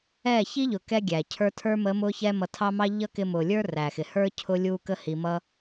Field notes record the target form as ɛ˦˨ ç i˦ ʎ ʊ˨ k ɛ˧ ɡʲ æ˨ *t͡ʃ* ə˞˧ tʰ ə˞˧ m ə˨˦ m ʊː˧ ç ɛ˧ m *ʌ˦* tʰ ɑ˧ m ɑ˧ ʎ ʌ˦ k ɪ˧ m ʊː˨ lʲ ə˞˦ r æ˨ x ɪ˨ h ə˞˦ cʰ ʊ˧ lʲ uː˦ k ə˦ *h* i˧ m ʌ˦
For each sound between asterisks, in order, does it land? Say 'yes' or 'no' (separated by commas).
no, no, yes